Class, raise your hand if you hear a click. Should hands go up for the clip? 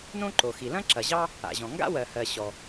yes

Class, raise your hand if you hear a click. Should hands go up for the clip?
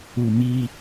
no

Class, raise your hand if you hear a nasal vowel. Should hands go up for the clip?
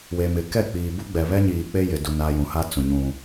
yes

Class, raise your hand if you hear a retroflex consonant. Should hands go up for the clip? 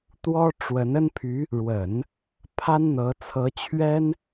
yes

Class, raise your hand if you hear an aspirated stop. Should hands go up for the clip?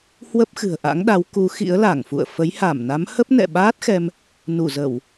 no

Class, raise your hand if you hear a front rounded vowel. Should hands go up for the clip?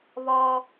no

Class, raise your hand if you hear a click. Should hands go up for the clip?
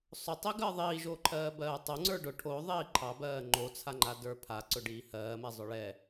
yes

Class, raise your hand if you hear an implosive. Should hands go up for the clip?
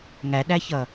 yes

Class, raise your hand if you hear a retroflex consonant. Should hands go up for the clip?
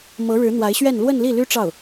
yes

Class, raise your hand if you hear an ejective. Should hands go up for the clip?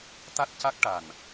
no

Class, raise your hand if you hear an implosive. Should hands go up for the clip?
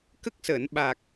yes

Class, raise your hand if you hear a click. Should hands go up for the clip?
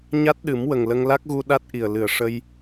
no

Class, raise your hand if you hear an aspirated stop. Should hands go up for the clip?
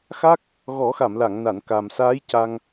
no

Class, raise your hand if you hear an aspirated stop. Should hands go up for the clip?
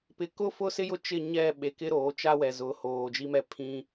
yes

